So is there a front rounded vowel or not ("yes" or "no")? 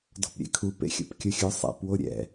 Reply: no